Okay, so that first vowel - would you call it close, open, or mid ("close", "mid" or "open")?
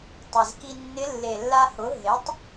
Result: mid